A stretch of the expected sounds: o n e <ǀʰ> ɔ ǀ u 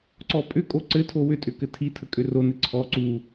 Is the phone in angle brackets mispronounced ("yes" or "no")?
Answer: no